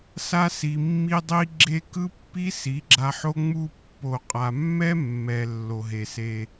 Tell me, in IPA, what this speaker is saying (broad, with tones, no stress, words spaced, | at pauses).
sa˦si˨mːi˦dˤi˦ ɡ͡ǁe˦ kɯ˦pːi˦ si˨˦ɡ͡ǁa˧ħo˦ ŋ͡mu˧pːo˨qʼa˨mːɛ˦ mːɛ˨ lːo˨ɦe˨se˧